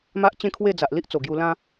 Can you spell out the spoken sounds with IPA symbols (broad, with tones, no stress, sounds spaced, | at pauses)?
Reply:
m a˦ ʔ t͡ɕ ẽ˥˧ kʰ w e˥˧ d͡z a˨ ʔ l i˦ ʔ t͡s o˨˩ ɡ j u˧ l ã˦